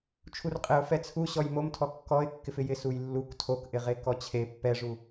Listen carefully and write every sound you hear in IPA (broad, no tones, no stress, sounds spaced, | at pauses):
t͡ʃʰ u r qʼ ɪ ʊ̯ f ɛ t͡sʰ u ɕ ɔ j m o m tʰ ɔ kː ɔ ɪ̯ kː ɪ f ɪ j ɪ s u j lː u k tʰ o k ʔ ɪ ʁ e k ɔ t͡ɕʰ e pː ɛ ʐ u